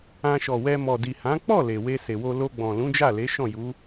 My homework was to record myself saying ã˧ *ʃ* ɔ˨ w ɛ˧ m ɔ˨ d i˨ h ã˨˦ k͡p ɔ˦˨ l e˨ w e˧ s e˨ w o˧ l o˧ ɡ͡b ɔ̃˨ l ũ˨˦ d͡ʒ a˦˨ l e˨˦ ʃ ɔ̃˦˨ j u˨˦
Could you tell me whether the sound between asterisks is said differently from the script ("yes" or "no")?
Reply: no